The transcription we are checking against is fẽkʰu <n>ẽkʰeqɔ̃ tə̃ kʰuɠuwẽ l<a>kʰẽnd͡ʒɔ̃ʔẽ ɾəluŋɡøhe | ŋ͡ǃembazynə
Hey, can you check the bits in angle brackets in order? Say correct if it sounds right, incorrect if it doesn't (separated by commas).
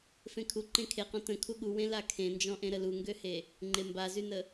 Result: incorrect, correct